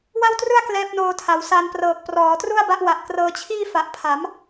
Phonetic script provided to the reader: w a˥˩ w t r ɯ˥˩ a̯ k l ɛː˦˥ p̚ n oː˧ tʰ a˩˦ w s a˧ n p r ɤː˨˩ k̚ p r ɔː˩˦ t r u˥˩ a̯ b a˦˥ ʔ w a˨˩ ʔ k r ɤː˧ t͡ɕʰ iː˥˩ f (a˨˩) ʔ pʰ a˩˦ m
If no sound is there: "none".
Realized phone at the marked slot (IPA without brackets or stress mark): a˨˩